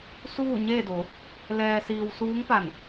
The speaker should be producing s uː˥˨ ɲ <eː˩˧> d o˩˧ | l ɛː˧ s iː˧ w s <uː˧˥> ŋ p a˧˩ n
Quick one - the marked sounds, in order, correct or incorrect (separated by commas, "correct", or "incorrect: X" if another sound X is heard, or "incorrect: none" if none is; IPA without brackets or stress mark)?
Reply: incorrect: eː˥˨, correct